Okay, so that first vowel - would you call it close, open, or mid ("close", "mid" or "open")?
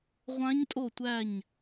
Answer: open